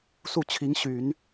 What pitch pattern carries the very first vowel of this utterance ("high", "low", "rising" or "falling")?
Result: falling